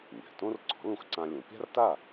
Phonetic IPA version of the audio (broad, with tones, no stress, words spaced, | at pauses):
nʲa̤˩ tõ˥r ǀɔ̤˩˥lũ˧xǀã˧ lʲõ˩˥ pʲa̤˥rta˥˩